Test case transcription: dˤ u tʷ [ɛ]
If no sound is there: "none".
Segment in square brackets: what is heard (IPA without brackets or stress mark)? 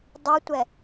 ɛ